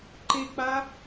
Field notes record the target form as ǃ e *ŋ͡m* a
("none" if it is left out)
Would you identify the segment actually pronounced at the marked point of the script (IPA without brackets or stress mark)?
k͡p